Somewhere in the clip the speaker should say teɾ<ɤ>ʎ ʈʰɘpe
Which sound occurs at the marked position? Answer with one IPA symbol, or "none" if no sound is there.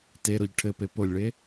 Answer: o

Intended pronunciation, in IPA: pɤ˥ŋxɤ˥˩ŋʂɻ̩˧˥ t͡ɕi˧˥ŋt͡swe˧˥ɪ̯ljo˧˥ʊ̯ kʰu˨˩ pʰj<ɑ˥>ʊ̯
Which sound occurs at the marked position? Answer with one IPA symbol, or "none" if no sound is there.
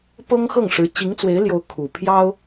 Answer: ɑ˥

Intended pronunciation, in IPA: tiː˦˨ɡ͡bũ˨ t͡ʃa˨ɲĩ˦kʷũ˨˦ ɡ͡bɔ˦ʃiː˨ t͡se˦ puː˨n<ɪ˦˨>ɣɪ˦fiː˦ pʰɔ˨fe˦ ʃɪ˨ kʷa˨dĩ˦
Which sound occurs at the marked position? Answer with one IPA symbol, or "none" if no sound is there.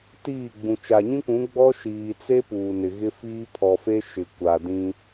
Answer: ɪ˨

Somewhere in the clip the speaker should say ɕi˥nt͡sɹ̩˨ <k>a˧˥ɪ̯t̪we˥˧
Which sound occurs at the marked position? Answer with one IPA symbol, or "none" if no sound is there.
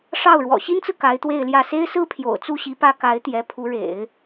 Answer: k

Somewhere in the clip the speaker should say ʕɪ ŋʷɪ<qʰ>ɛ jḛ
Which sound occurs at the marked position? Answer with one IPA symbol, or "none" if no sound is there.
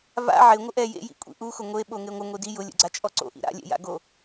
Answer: ʔ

